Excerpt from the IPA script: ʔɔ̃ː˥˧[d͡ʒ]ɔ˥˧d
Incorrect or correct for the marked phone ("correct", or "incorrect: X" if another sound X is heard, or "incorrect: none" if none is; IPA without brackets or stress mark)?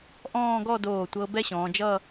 incorrect: ɡ